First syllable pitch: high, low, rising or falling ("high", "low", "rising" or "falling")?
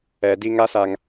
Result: low